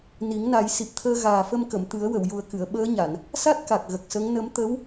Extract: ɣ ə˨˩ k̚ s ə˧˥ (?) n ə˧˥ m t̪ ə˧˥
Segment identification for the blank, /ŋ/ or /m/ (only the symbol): ŋ